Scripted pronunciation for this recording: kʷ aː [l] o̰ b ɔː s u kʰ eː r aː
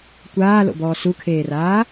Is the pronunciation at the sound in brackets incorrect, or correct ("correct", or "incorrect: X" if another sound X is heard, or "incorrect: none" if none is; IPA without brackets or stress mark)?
correct